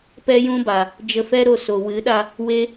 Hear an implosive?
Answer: yes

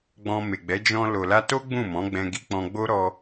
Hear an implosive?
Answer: no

